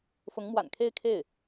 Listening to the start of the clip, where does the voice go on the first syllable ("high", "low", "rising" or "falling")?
rising